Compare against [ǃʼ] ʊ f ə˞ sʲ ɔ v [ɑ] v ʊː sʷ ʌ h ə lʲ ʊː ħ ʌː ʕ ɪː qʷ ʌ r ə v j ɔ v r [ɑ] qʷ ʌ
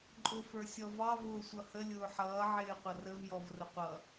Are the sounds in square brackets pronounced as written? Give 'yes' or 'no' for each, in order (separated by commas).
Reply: yes, yes, no